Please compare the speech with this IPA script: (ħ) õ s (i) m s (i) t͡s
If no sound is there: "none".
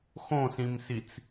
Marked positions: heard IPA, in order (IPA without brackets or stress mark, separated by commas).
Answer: x, ĩ, i